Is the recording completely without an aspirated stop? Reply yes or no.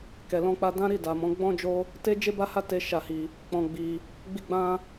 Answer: yes